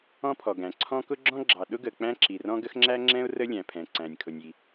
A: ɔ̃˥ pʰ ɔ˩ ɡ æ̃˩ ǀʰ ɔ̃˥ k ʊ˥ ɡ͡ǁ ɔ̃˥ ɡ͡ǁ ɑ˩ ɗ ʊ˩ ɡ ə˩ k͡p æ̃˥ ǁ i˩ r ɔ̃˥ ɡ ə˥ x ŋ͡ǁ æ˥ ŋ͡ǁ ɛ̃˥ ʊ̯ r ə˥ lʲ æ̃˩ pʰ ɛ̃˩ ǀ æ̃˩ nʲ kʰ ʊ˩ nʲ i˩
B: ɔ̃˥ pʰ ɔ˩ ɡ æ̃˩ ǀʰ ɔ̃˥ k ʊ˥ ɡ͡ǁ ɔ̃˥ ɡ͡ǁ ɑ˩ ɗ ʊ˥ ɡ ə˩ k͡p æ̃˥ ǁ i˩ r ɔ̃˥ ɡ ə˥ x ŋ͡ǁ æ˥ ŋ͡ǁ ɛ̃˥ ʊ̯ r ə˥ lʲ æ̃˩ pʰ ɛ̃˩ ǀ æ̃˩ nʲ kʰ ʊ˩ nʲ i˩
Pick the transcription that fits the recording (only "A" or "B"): B